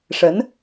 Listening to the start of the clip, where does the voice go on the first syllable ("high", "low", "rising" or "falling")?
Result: rising